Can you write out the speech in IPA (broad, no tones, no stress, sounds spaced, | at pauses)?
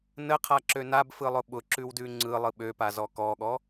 n ə qʰ a ǁ ø n a b f ɯ lˠ ʊ ɓ ʊ ǁ ʉ w d ʉ ŋ͡ǀ ɯ lˠ ɯ ɓ ø p a z ɔ k ɔ ɠ ɔ